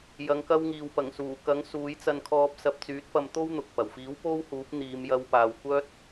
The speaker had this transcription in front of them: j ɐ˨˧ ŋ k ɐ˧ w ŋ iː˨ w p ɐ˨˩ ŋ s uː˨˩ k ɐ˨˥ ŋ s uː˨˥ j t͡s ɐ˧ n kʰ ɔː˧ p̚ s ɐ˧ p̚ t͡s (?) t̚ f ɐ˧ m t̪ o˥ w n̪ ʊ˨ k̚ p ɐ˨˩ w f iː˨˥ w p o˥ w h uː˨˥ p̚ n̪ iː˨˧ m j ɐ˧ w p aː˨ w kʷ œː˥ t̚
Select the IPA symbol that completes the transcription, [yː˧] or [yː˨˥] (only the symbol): yː˨˥